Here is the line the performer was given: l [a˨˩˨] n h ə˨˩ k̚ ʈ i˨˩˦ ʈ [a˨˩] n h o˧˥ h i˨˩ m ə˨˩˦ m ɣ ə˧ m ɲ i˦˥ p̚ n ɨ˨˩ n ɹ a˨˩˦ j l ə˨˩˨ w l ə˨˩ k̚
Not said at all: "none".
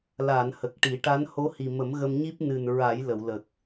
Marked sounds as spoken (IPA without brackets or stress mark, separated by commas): a˨˩˨, a˧˥